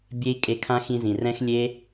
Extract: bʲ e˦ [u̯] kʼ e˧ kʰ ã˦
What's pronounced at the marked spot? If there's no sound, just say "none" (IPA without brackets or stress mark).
i̯